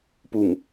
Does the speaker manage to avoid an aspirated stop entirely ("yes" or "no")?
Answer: yes